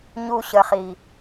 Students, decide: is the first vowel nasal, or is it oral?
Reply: oral